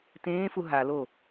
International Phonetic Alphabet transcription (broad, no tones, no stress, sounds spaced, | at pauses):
t ẽː f u ɦ a l o